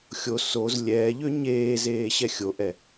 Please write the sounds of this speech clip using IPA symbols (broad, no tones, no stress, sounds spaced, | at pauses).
xʲ o s o z lʲ ɛː ʎ ø ɲ eː z eː ɕ ɛ xʲ o ʔ ɛ